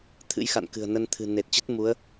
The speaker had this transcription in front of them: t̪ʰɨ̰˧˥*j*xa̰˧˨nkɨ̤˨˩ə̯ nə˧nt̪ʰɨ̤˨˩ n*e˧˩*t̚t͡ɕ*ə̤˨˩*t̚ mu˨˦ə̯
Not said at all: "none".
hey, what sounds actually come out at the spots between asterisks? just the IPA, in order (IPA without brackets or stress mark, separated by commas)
j, e˨˩, ə˦˥